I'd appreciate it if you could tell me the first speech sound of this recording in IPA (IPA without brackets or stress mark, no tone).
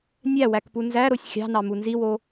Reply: nʲ